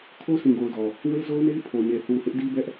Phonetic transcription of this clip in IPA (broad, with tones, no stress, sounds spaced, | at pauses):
kʰ o˦ sʰ ĩ˨ ɡ o˨ ʊ̯ d ɔ˨ | w e˦ z o˦ ʊ̯ n e˦ ɪ̯ pʰ o˨ ɲ e˨ θ u˨ h ɪ˦ ʔ d i˦ b ɛ˦ ʔ